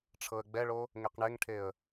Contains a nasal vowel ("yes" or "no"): no